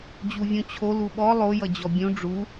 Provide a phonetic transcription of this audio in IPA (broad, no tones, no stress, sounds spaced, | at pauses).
d͡ʑ u vʲ ũ t͡ɕʰ o l u ɓ ɔ lˠ o j ʌ d͡ʑ ɔ bʲ ũ ɖ͡ʐ u